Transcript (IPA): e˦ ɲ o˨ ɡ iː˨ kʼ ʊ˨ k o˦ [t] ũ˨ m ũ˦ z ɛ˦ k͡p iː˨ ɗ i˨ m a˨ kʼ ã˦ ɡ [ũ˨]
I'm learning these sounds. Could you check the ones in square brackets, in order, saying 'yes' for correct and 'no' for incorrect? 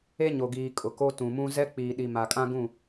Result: yes, no

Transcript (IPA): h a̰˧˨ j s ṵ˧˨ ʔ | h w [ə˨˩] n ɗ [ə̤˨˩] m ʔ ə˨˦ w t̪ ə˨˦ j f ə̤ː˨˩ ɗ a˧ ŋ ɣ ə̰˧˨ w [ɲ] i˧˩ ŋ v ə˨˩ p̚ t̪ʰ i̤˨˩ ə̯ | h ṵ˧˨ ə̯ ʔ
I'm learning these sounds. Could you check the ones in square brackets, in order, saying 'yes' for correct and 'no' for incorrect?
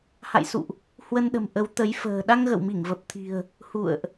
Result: no, yes, no

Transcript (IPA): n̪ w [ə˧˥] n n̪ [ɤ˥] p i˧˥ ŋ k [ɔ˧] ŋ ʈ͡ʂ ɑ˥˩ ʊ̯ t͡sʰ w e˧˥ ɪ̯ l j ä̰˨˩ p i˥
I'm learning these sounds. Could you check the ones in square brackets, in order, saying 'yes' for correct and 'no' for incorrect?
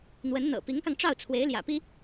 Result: yes, no, no

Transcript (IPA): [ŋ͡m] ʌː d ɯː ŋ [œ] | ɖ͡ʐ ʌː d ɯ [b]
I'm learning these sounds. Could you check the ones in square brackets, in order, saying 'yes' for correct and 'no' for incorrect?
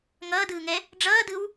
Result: no, no, no

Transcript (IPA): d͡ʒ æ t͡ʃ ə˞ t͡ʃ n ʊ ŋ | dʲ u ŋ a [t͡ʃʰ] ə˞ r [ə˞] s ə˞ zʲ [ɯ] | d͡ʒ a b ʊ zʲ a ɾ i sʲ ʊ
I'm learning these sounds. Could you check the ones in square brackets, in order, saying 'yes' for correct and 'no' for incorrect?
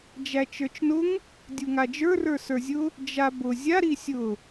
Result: no, yes, no

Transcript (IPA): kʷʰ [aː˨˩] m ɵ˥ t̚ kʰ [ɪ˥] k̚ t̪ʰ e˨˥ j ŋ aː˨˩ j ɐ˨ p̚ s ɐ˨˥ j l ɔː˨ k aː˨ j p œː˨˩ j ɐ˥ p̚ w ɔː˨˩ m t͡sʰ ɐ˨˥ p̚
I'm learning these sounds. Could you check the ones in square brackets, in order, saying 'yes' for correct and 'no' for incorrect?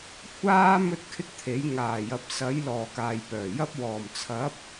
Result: no, yes

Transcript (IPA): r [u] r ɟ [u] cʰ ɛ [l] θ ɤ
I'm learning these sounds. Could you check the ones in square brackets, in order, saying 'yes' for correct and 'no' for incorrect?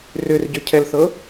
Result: no, no, yes

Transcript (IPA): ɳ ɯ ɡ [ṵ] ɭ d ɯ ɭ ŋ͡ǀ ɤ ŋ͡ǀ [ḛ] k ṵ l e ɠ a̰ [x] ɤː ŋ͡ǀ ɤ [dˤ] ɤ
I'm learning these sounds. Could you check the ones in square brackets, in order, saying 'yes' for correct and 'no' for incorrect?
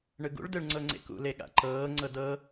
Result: yes, yes, no, no

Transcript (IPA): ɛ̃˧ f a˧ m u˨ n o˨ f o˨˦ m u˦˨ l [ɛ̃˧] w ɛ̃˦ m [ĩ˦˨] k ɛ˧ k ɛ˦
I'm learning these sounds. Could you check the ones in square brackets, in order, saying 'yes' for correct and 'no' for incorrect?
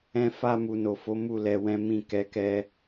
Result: no, yes

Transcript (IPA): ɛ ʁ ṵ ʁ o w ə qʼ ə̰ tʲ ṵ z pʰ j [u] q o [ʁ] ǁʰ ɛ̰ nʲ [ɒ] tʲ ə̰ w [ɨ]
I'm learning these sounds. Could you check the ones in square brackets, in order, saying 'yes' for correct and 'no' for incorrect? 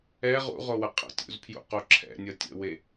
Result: no, no, no, no

